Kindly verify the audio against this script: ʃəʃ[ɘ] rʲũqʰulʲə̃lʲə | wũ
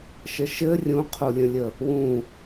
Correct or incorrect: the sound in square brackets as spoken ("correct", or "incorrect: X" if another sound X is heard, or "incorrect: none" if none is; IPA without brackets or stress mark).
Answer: correct